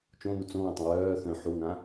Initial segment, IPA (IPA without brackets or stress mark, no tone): t͡ʃ